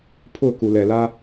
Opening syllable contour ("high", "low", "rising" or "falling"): falling